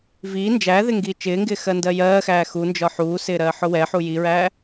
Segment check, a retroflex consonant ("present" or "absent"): absent